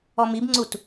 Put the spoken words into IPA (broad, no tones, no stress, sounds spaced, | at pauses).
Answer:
ɔ m i b ŋ͡ǀ u t